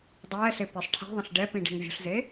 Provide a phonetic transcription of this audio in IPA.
dˤ ɛː ɬ e p i sˤ ʈʰ ɛ̤ ðˤ ə̃ ɬ ɖ ɛ p ĩ ɖ i̤ ŋ vʲ ṳ ɬ z e

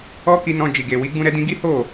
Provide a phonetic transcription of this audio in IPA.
ɔ˦ k i˧ n ɔ̃˧ d͡ʒ i˨ ɡ e˨ w i˨˦ ɡ͡b ũ˦ ɾ ɛ˦ d ĩ˦ ɡ i˦ h o˦˨

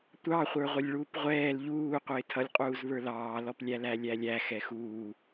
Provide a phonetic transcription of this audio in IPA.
tʷ ɑ χʷ ə˞ ʁʷ ə lʲ ɭ uː p ʁʷ ɛː l ʎ uː qʷ ɪː tʰ ʌ lʲ qʼ uː z β ə˞ l ɑː l ɔ p lʲ æ l æ lʲ æ lʲ æ x ɛ x uː

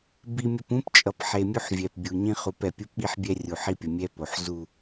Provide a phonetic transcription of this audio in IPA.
b i˦ mʲ ʌ˦ p ũ˦ p t͡ʃʼ ʌ˨ p ħ e˨ mʲ u˦ ħ vʲ ɛ˨ p bʲ u˨ ɲ ĩ˦ χ u˨˦ p ɛ˨ pʲ u˦ p ɓ i˦ ħ bʲ ɛ˦ rʲ u˨ ħ i˦ pʲ ʌ˨ mʲ ɛ˦ p o˨ ħ z u˦˨

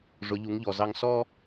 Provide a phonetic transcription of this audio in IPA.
ʐ ʊ˩˧ ʎ u˩˧ ŋ ʎ ɔ˩ z ɑ˧ ŋ s ɔ˥

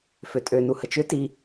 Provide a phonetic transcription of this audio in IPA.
f ø tʼ ø n u h ə t͡ʃ ʏ t i

